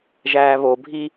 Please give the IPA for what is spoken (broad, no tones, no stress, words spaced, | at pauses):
ʒæːβobʱi